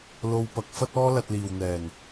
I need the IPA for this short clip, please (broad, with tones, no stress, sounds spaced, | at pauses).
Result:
l o˧ w p ɐ˨˥ k̚ f ɐ˥ t̚ ɔː˥ l ɐ˧ t̚ l iː˨ w n̪ ɛː˨˩ n